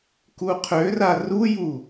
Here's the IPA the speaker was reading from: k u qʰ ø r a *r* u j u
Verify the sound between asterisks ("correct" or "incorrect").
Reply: correct